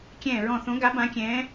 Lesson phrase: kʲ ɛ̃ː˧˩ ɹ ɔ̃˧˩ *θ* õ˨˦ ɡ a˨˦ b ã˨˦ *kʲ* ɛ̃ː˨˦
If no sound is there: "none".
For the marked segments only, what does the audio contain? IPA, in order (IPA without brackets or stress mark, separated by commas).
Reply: θ, kʲ